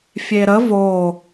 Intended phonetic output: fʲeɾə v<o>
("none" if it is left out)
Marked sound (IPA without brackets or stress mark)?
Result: o